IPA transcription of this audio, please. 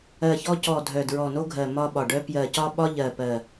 ɜ˨˩ ç ɔ˧ c ɔ˨˩ dʱ œ˨˩ d ɹ ɔ˨˩ n o˧ ɡʱ ɜ˨˩ m ɒ˧ ɓ ɒ˨˩ ɖ œ˧ p j ɜ˨˩ c ɒ˧ ɓ ɒ˧ ʎ ɜ˨˩ p ɜ˨˩

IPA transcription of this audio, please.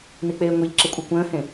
n i k͡p eː ŋʷ i ʎ ǁ ɪ kʷʼ e kʷ ə̃ː h ẽ

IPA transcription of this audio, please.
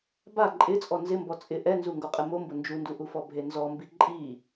b a ǃʼ ɪ t͡sʼ ɔ n z ɪ m b ɔ t͡sʼ ɪ ʔ ɛ n z u ŋ ɡ o qʼ e m o m b ʊ n d͡ʒ u n d u ʔ u f ɔ bʱ e n z ɔ m b i ǃʼ i

